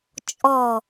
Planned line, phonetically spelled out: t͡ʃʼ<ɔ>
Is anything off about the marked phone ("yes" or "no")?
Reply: no